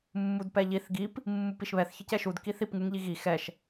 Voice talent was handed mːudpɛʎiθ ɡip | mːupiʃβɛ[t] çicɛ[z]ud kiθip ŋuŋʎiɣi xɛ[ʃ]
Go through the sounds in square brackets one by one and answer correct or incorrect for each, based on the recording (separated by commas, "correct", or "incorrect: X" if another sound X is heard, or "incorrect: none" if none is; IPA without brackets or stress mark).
incorrect: θ, incorrect: ʃ, correct